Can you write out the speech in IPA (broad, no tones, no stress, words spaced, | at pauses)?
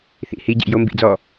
θḭ hi ɟḭjo mbḭd͡zɔ